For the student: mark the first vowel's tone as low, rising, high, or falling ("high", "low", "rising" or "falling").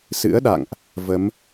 rising